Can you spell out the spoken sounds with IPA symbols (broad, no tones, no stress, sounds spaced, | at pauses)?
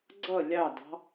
ɡ͡ǀ ʌ lʲ ɑ d ɑ̤